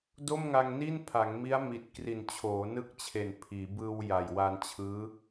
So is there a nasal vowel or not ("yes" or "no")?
no